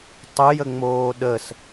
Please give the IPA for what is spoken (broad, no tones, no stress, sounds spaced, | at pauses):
tˤ ɯ j ə ŋ͡m oː ɗ ə s